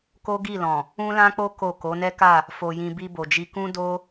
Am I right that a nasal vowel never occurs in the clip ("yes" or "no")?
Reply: no